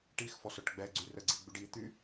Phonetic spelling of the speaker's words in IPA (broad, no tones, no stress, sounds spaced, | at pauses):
ʈ i x f ɔ s œ ʈ ɡ͡b ɛ ɡ͡ǀ y r ə ɡ͡ǀ i ɡ͡b y ɖ i t̪ y